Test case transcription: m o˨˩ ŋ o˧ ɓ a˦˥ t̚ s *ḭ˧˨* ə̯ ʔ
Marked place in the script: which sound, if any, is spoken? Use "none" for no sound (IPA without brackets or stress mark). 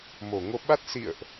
ḭ˧˨